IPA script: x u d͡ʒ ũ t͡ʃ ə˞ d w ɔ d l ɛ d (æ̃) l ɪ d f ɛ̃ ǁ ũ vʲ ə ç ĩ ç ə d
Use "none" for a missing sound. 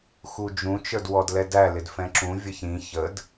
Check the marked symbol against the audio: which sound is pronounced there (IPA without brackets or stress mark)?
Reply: æ